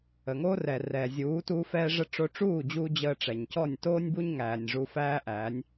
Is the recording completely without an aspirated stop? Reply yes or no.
yes